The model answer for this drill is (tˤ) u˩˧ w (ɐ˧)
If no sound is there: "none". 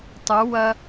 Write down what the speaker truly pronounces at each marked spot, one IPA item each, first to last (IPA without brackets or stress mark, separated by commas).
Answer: tˤ, ɐ˧